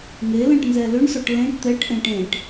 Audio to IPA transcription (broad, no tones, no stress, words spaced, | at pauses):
ŋelɛ̃ʈ nzɛlʏɳsɔʈ lẽʈ t̪ɛʈʔẽ ʈẽʈ